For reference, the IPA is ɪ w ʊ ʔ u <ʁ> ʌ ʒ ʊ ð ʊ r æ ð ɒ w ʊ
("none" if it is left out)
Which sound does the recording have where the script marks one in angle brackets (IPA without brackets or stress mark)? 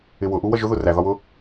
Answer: w